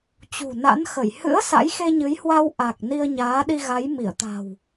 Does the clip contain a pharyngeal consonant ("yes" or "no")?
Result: no